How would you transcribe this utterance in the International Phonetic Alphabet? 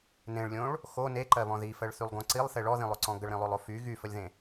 nẽɭlʲõɭ | xo neǃɜβɔ̃ ðifɜɭθylˠɡõ ǀilˠθe ɭɔðĩlˠoǀɔ̃ ɡəɭɾĩlˠolˠo fy ɣyfəlʲðẽ

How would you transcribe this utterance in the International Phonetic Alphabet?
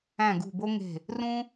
æ̃˧˩ɡṳ˧˩bo˦ŋe̤˧˩ | rũ˦

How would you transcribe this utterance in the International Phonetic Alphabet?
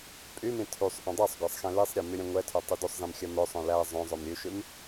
pʼymĩ tʰysˤʔœ̃ dˤisˤɡʷæsˤ xɛ̃lisˤɾʲæ myɾʲɛ̃ŋʷɛtʰœ tˤydʉsˤzɛ̃m xʲœmœsˤœ̃ læ zˤœ̃zˤœm ɾʲʉʃʉm

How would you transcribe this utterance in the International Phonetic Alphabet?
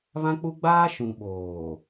βã˦k͡pu˦ ɡ͡baː˦ ʃũ˨ ɓoː˨

